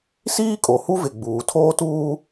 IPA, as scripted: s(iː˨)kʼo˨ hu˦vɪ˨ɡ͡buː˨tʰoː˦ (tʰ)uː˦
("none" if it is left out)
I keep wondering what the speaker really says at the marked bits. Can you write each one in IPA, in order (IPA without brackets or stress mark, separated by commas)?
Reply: iː˦, t